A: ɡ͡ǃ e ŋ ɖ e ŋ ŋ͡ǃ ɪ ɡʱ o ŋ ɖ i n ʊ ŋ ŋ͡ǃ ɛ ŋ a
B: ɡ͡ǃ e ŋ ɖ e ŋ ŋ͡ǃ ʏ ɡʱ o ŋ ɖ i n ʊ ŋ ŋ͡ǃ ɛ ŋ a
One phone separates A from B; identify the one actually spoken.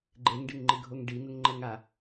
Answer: A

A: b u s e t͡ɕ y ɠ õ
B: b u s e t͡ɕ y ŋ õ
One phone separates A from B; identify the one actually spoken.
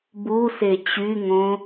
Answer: B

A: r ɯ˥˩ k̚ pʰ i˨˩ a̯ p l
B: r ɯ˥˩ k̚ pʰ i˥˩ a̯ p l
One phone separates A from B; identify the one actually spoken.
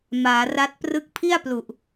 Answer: B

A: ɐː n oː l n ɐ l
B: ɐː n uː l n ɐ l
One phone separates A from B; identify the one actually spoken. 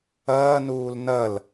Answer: B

